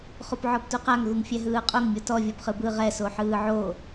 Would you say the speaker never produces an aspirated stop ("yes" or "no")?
yes